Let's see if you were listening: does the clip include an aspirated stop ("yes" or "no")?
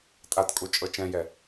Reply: no